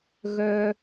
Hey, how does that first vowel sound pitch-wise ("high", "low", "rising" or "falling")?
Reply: high